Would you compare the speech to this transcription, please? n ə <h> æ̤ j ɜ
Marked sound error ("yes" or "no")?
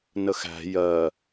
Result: yes